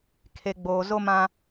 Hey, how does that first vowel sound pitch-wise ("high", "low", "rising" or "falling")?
low